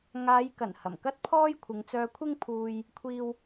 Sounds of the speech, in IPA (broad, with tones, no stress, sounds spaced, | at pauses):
ŋ aː˨˧ j k ɐ˨˩ n h ɐ˨˩ m k ɐ˥ t̚ pʰ ɔː˥ j kʷʰ ɪ˨˧ ŋ t͡s œː˧ kʷʰ ɪ˥ ŋ pʰ uː˧ j | kʷʰ iː˥ w